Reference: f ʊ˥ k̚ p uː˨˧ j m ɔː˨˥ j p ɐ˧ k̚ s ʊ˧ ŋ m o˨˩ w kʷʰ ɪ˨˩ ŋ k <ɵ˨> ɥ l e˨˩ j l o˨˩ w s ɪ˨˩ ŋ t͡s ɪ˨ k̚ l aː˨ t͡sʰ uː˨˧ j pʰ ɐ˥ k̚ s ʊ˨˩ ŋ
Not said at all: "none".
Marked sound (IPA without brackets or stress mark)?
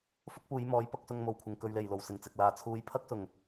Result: ɵ˨